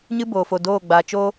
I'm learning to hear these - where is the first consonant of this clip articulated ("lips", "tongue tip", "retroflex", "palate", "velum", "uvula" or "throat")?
palate